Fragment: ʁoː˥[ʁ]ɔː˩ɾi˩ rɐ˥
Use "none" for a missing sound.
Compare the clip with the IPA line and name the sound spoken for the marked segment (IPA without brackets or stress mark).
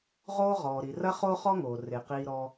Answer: ʁ